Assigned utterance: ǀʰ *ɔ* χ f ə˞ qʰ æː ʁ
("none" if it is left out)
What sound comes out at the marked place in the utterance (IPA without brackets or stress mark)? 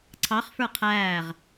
ɑ